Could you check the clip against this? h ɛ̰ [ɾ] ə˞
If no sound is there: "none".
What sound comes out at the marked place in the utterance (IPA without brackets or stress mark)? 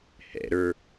ɾ